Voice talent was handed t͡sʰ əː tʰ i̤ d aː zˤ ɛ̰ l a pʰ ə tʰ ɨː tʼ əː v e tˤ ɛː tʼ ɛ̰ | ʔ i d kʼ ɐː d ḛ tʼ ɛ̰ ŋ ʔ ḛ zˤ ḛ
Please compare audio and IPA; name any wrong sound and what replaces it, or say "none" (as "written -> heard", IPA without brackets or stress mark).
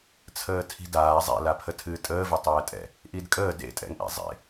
ɐː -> əː